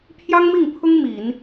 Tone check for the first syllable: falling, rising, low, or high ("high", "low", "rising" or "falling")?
high